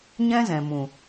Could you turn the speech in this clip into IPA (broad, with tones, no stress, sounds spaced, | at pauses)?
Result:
ɲ ɛ̃˦ z ɛ̃˨ m ũ˨